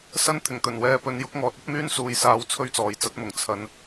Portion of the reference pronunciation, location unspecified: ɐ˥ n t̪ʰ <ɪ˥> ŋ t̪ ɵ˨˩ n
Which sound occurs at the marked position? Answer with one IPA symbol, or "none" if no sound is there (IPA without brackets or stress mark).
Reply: ɪ˨˩